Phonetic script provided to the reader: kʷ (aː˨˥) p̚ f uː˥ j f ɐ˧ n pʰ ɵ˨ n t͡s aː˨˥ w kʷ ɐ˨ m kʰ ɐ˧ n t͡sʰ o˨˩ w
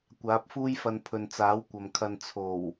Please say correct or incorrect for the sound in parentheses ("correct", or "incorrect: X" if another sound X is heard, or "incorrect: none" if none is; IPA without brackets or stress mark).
correct